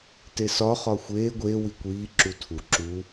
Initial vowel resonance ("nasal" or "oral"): oral